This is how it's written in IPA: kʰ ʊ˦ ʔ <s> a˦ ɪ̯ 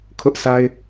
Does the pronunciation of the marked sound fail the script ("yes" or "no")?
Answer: no